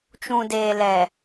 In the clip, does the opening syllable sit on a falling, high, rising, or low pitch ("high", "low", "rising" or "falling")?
low